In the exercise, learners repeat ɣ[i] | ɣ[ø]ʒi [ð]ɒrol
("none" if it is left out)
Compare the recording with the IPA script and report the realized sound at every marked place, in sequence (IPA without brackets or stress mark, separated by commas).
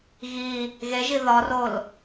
i, e, ð